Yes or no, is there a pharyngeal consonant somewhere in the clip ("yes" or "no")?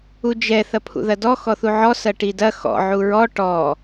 yes